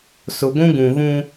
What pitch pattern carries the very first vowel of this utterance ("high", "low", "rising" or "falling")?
low